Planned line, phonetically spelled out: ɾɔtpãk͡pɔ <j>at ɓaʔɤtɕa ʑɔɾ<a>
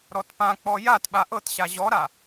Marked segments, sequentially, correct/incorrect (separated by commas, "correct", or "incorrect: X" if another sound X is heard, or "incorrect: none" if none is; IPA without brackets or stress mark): correct, correct